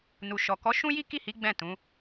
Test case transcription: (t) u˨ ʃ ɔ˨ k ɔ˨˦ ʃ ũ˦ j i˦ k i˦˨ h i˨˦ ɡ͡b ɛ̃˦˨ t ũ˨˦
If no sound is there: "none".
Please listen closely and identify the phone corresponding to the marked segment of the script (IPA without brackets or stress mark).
n